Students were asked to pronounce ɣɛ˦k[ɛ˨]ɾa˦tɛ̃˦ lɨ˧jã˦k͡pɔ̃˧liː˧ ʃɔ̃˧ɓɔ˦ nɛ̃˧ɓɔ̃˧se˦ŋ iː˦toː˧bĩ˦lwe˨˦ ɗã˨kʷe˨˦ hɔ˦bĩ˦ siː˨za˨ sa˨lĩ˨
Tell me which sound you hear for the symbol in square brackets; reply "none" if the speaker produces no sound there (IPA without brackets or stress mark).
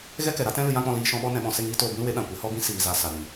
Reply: ɛ˨